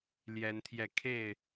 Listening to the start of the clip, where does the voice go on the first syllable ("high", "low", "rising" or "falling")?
rising